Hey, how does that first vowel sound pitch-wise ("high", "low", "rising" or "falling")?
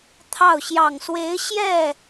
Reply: falling